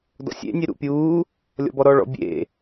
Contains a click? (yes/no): no